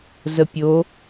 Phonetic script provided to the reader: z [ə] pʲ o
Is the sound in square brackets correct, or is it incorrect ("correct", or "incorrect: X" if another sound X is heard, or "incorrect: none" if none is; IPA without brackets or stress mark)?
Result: correct